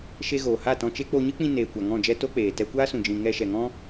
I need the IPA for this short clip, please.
ʃe˧ɣoː˨ha˦˨ tɔ̃˧t͡ʃe˦ k͡po˧ɲɨ˦k͡pĩ˧ neː˨ kʷa˨ŋɔ̃˦˨d͡ʒɛ˦ to˦k͡peː˨ tɛ˧kʷaː˦sũ˨d͡ʒĩ˨ ŋɛ˧ʃɛ˨ŋɔ̃˦

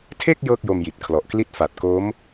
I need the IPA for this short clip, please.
tʰe˥˩k̚ jɤː˥˩k̚jo˧mji˨˩t̚kʰlɔ˨˩ʔ kli˥˩t̚ fa˨˩t̚ko˦˥m

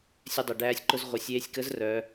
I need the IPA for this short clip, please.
sʲœ˧dˤə˩ɖæː˧sʲǃʊ˧z ʁʷə˩˧sʲ eː˧sʲkə˧˥z rœ˩˧

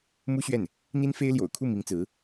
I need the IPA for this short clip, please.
mu˥ɕɥɛ˥˩n | n̪i˥nfe˥ɪ̯ljo̰˨˩ʊ̯kʰu˥˩ mi˧˥ŋt͡sɹ̩˧˥

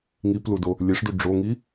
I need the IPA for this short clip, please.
ŋipludo | lʲeʂdu ɖ͡ʐoŋi

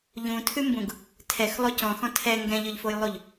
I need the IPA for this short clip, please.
ʎũtʰʉmbũɡ | tʰɛxlˠo cɔ̃xɔ̃ tʰɛ ŋɡɛ̃ʎʏʎfojlˠuʎ

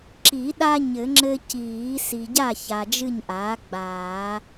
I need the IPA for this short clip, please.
ǁi˨˩˦ɗa˦ ɲɘ˨˩˦ŋ͡ǁɘ˦ ciː˨˩˦ si˨ɟa˥˨ ça˨d͡ʒɨ˥˨ɲʔaː˩˥ ɡ͡baː˨˩˦

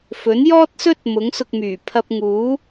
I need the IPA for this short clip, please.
fɵ˨˥njɔː˥t̚sɵ˥t̚ mʊ˨˥ŋsʊ˧k̚myː˨˩ pʰɐ˧p̚ŋuː˨˥

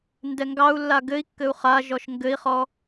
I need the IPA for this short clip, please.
ndɛŋɡɑu̯lːa ɡɘi̯kːɘu̯ χa ʒɔʃŋɡɘi̯χɔ

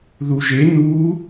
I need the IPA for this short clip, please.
ðuʒe nu

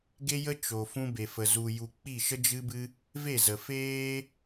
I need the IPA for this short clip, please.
ɡe˦jə˦ t͡ʃo˨ fũ˧be˨fə˨ zu˨ju˨ k͡pi˦˨ʃə˦ d͡ʒɨ˧bɨ˧ | ve˦˨zə˨feː˦

